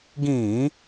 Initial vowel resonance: nasal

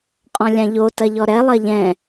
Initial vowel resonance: nasal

